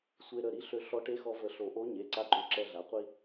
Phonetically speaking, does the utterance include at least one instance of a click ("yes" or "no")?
yes